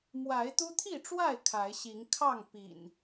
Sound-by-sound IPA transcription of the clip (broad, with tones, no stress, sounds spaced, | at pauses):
m w a˨˦ ɪ̯ t̪ u˦ t̪ʰ i˥˨ ʈ͡ʂ w a˥˨ ɪ̯ kʰ a˨˦ ɪ̯ ɕ i˨˦ ŋ kʰ ɑ˥˨ ŋ p ḭ˨˩ n